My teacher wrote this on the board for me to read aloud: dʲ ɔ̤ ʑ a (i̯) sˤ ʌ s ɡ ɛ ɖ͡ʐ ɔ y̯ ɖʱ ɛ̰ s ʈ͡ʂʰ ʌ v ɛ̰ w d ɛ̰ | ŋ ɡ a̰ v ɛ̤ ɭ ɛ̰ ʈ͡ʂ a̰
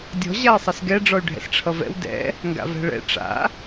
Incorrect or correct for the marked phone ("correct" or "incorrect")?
correct